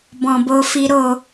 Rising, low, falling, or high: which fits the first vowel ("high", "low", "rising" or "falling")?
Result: low